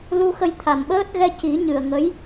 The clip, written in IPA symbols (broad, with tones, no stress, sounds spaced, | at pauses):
l u˧ x ə˧ j t̪ʰ a˨˩ m ɓ əː˦˥ t̚ ɣ ɛ˧ c i˨˩˦ ɲ ɨ˨˩ ə̯ ŋ ə˧˥ j